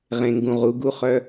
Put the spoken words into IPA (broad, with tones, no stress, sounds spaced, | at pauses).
ʁ ẽ˨ ŋ ɡ ũ˨ ʁ u˨˦ ɡ u˦ χ œ˦